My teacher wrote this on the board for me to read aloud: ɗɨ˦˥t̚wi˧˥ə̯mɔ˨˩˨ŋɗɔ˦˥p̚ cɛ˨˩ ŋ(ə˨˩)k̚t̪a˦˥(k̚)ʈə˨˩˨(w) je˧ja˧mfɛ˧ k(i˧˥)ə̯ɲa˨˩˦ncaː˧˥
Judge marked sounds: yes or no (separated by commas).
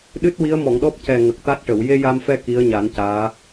yes, no, yes, yes